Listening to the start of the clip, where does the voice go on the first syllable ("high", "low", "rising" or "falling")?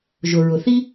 low